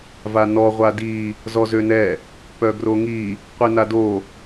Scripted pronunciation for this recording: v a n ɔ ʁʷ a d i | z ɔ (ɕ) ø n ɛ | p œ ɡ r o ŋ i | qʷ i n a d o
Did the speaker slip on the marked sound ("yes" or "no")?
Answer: yes